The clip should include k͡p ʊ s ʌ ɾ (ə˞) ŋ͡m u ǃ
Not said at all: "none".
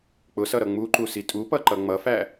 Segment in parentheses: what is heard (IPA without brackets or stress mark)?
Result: ʌ